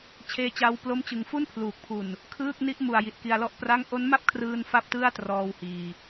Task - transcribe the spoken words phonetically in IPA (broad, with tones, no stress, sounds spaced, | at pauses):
t͡ɕʰ eː˦˥ t͡ɕ a˦˥ w p l o˥˩ m t͡ɕ ɯ˧ ŋ f u˥˩ n pʰ l uː˨˩ k̚ pʰ u˨˩ n | kʰ ɯː˥˩ k̚ n i˥˩ ʔ m u˨˩ a̯ j i˨˩ t̚ k i˧ a̯ l ɔ˥˩ ʔ p r a˥˩ ŋ ʔ o˦˥ n m a˥˩ p̚ kʰ r ɯː˧ n f a˥˩ p̚ t ɯ˥˩ a̯ t r ɔː˧ w h iː˧